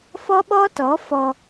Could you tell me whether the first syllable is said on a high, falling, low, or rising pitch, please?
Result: high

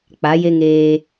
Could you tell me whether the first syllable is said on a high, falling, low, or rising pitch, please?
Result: rising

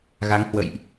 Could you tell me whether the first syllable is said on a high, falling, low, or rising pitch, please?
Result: rising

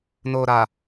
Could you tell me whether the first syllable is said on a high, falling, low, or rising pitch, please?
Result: low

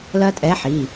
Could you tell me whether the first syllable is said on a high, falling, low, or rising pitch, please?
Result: high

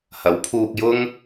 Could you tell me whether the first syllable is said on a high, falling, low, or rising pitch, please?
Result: rising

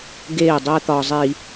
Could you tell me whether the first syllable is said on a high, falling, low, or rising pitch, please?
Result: falling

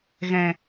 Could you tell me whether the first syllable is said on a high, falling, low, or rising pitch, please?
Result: low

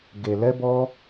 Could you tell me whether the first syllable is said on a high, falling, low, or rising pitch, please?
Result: low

